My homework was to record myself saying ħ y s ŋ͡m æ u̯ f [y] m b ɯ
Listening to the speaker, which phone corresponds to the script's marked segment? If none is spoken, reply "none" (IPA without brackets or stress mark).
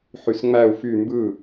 y